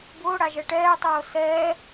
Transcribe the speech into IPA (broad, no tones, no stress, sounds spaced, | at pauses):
b ʊː ɽ a ʒ ɛ ʈ ɛː tˤ oː s ɛː